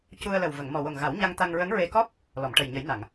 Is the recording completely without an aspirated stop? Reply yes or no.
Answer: yes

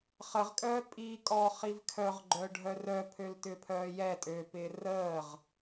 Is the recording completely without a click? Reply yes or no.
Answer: no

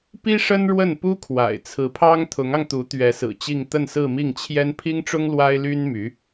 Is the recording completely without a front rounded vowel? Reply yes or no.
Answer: no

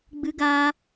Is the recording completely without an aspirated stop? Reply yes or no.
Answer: yes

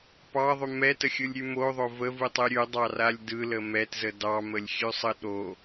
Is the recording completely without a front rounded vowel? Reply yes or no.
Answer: yes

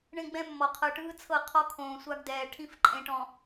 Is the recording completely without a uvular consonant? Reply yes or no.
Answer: no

